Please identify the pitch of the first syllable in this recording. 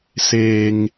low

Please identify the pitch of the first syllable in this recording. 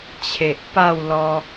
low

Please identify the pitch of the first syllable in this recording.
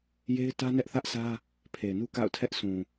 high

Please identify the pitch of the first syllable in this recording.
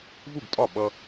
falling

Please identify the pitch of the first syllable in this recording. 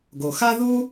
low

